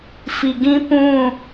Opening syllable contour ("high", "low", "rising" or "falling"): low